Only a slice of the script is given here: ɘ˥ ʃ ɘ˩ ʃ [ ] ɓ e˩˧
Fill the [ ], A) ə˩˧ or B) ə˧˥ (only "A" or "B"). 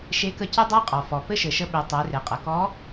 B